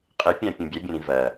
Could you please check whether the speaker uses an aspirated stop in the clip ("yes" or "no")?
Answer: no